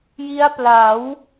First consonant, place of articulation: palatal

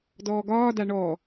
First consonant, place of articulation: alveolar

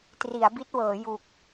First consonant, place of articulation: alveolar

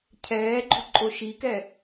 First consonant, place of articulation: palatal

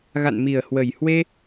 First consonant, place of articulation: velar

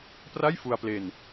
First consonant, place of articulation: labial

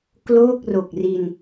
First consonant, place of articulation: velar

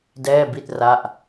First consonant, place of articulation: alveolar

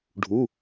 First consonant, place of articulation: retroflex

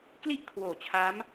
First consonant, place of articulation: velar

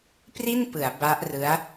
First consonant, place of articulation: labial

